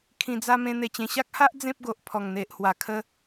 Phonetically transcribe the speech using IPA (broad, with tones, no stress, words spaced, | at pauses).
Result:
kʰĩ˧d͡za˦ mẽ˧ n̪e˧t͡ɕẽ˧ ɕa˦k̚ha˦ʔ d͡zẽ˦p̚ɡo˨ʔ pʰɔ˨˩ŋ n̪e˨ʔhwa˨˩ kʰə˧